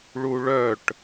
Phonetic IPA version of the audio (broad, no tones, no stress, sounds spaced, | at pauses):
ɭ u ɭ œ ʈ